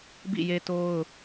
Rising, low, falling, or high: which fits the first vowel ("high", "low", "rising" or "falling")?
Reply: falling